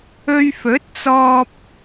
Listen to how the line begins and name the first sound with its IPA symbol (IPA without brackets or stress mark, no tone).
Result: ɵ